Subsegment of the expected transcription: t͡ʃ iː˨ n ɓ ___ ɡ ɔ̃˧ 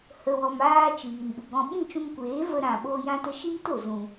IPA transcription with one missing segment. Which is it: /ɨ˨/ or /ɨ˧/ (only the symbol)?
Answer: ɨ˨